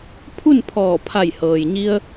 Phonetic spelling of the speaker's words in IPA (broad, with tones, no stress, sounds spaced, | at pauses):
pʰ u˥˨ n pʰ ɔː˧˩ pʰ a˧˩ j h ɤː˩ j ɲ i˧ ə̯